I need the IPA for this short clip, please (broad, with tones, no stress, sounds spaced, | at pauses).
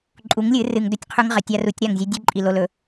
ǃʼ u˨˦ ŋ lʲ ɨ˨˦ r ɨ˨ ŋ d ɵ˦˨ tʲ qʰ ʉ˦ ŋ ʁ ɐ˨˦ tʲ a˦ r u˨˦ tʲ ɾ a˦˨ ŋ zʲ ʉ˦ dʲ ʉ˦ ǃʼ i˨ l o˨ l ɵ˨